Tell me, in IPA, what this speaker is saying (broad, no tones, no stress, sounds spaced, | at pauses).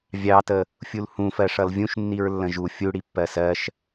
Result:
vʲ ɑ t ə | fʲ u l h ũ f ɜ ʂ ʌ l vʲ ũ ʃ nː i ɹ lː ə̃ ʒ u fʲ u ɽ i pː ɜ s ɜ ʃ